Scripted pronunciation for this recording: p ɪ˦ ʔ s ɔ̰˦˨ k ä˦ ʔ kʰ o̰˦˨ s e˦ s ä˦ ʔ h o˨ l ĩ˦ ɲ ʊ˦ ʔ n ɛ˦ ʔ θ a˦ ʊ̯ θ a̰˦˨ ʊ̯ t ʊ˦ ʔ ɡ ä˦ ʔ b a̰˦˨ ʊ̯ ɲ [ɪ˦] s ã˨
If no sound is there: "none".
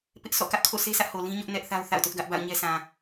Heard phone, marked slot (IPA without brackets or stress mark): ɛ˦